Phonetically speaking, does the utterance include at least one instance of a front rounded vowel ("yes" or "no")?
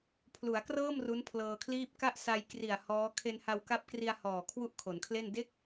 no